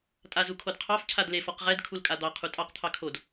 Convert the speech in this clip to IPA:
tʼ a z u kʰ o d qʰ ɑ f cʰ a d l e f ɔ q ʁ ɛ d kʰ u l kʼ a d̪ ɑ qʰ u tʼ ɑ q t̪ʰ ɑ kʰ o d

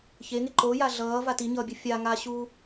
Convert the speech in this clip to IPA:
ç e ŋ e ǃ o j a ɮ ʌː v a t i ɲ ʌː bʲ ɯ fʲ a ŋ a ɕ uː

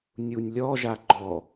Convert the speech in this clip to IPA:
nʲ u nʲ lʲ ɔ ʒ a ɡ͡ǃ ɔ

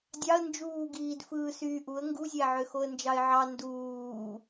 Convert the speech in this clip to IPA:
dʲ ɑ ə̯ n d͡ʒ uː ɡ iː d f ɯː s yː ʔ u ə̯ ŋ ɡ u zʲ æ ʕ ø x o ə̯ n d͡ʒ ɑ ɪ̯ ʕ ɑ n d uː

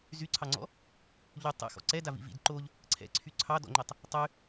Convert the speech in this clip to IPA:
z y ǀʰ ɑ ŋ͡ǀ ɔ̰ | ʎ y tˤ ɛ̰ x ɔ̰ ǀ ɛ d a v ḭ v ḭ d ǃ o ʎ | ǀʰ ɛ̰ ǀʰ y ǀʰ ɑ d ɔ̰ ŋ͡ǃ i tˤ | tˤ y

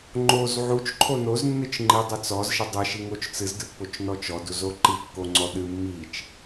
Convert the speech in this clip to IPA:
ŋ͡ǃ o z ʕ u t͡ʃ ǃʰ o n o z nː ɨ t͡ʃ ŋ͡ǃ i dˤ ɘ t͡s ɔ z ʃ ɘ dˤ ɘ ʃ i ŋ o t͡ʃ t͡s ɨ z d ɨ pː o t͡ʃ n ɔ t͡ʃ ɔ d u z o ǃ i kː o ŋ͡ǀ ɔ ɗ ɨ mː i t͡ʃ

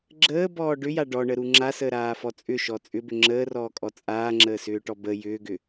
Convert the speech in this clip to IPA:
ɡ͡ǁ əː b ɔː ɖ ʏ j a ɖ ɔ ɳ ə ɾ u ŋ͡ǁ a s əː ɾ aː f ɔ t͡sʼ ʏ ʃ ɔ t͡sʼ ʏ b ʏ ŋ͡ǁ əː r ɔː kʼ ɔ t͡sʼ aː ŋ͡ǁ əː s ʏː ʈ ɔ b ə j ʏː ɡ ʏ

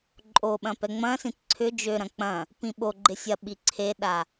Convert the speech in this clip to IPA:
ǃʼ o ɓ ɐ̃ p ɛ ŋ͡m ɐ̃ s ĩ t ǀʰ ʏ d͡ʒ ø ɾ ɐ̃ k͡p ɐ̃ | p ĩ ɓ o ɡ͡ǃ ɪ sʲ ɐ ɓ i ǀʰ e ɗ a

